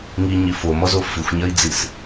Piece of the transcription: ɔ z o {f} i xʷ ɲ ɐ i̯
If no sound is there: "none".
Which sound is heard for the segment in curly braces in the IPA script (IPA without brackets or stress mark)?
f